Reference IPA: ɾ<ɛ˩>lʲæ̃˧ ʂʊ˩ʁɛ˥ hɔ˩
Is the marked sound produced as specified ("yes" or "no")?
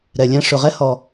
yes